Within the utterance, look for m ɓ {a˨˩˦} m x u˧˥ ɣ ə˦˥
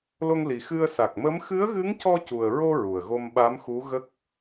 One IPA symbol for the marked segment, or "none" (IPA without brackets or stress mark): a˧˥